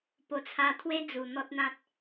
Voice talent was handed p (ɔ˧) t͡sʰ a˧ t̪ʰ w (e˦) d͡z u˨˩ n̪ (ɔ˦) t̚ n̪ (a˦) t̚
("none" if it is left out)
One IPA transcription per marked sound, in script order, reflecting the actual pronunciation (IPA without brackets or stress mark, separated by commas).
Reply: o˧, e˦, ɔ˦, ã˦